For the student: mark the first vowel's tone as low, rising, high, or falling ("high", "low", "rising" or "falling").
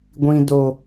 high